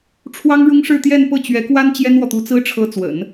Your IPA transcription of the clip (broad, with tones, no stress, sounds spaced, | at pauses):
ʈ͡ʂʰ w ɑ˥ ŋ ɻ ʊ˥ ŋ ʂ ɻ̩˥˧ t̪ j ɛ˥˧ n p ɤ˥˩ t͡ɕ ɥ ɛ˧˥ k w a˥ n t͡ɕ j ɛ˥ n w ɔ˨ t̪ u˧˥ t͡s ɹ̩˥ ʈ͡ʂʰ ɤ˧˥ t͡s w ə̰˨˩˦ n